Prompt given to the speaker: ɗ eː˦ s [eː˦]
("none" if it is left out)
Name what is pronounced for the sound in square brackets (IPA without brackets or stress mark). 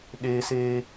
eː˦